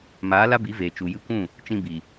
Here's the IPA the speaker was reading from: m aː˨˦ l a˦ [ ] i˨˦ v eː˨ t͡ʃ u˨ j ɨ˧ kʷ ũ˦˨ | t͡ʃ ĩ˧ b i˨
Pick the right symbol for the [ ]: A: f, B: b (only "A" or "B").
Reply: B